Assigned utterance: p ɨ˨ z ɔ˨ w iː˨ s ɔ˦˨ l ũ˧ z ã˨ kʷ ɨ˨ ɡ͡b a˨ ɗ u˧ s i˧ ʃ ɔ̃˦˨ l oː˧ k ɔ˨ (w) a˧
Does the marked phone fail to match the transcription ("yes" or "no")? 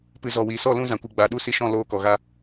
yes